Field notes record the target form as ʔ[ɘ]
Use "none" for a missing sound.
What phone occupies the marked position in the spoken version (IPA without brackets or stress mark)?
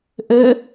ɘ